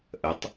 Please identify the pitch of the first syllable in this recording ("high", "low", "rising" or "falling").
rising